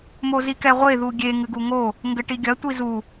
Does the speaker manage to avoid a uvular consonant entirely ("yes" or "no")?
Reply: no